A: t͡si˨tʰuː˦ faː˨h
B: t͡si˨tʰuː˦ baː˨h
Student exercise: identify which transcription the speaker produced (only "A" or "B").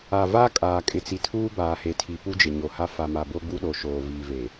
B